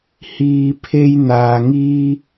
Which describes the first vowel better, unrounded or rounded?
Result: unrounded